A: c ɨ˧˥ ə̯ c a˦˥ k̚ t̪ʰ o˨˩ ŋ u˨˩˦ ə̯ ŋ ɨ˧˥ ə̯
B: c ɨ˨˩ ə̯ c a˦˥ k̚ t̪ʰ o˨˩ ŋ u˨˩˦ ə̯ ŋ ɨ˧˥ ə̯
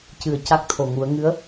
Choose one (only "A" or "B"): B